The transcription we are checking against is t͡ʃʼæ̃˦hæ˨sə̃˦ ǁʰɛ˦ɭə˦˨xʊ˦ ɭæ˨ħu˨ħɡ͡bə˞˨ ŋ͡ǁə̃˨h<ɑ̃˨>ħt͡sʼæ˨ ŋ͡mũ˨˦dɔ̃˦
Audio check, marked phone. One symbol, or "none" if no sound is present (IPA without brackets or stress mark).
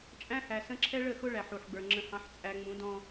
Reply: ɑ̃˨